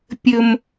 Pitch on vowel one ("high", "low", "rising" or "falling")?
low